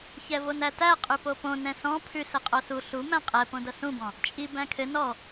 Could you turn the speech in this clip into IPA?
ç ɛ v o n æ t æ qʼ ʉ p o p õ n ɛ̃ s ɔ̃ pʰ ʉ s ɛ qʼ o s u ɬ u m æ̃ qʼ ɛ p õ d ʌ s ũ b ɔ̃ | t͡ʃʼ i b æ̃ kʰ ɘ n ɔ

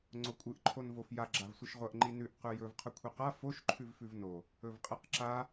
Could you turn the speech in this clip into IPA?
ŋ͡ǀ o kʷʼ ɨ ʔ ǃʰ o n v o f j a ɡ͡ǁ a v sʷ ɨ ʃ ʁʷ ɐ ʔ ŋ͡ǃ i n ʉ ʔ q ʉ j ɵ v qʰ ɵ kʷʰ i q a f o ʃ ǃʰ ʉ v f ʉ v n o | ɵ v qʼ e q ǁ a

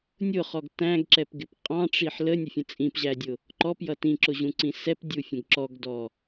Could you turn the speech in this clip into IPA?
nʲ ʊ χ ɔ ɡ t æ̃ ɡ ǁ ɛ p ɡ ɪ p qʼ ɑ̃ ʈ͡ʂ i ħ l ə nʲ ə fʲ ə̃ t͡sʼ ĩ p ʑ æ dʲ ʊ | ǃ ɔ p j ʌ t ĩ ǁ ʊ ʑ ũ ǀ ĩ s ɛ p dʲ u fʲ ə̃ ɡ ǁ ɔ ɡ d ɔ

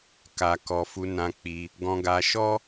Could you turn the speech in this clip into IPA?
k a˨ k ɔ˨ f u˨˦ n ã˧ k͡p i˧ | ɡ ɔ̃˧ ɡ a˧ ʃ ɔ˦

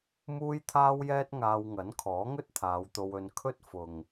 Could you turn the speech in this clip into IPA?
m uː˥ j t̪ʰ aː˥ w j ɛː˥ t̚ ŋ aː˧ w ŋ ɐ˨˥ n kʰ ɔː˨˥ ŋ ɵ˥ t̚ t̪ʰ aː˨˧ w t̪ o˧ w ɵ˧ n kʰ ɵ˥ t̚ f ʊ˨ ŋ

